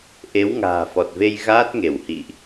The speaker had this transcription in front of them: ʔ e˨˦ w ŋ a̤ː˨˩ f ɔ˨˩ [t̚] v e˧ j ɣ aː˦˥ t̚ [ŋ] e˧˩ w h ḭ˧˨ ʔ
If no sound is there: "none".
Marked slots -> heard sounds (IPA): t̚, ŋ

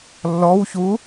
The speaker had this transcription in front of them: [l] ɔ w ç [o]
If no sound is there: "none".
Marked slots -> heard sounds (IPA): lː, u

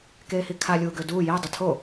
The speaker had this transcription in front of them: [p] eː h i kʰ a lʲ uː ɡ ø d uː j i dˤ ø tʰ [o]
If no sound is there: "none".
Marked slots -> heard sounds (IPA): k, o

